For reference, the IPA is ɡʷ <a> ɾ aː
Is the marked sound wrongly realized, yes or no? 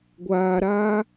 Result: yes